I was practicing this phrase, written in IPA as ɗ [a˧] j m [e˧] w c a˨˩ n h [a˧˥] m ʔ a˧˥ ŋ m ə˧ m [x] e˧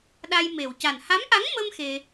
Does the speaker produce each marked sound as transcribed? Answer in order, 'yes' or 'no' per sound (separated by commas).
yes, no, yes, yes